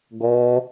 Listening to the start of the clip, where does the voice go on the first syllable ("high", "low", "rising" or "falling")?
high